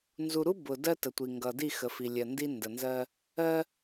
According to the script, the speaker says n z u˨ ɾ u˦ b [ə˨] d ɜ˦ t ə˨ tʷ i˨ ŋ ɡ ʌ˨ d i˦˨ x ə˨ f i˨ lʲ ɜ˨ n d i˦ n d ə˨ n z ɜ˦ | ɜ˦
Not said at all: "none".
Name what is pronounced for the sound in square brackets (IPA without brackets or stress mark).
ʊ˨